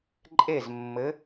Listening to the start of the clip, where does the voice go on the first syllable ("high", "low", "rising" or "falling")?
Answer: falling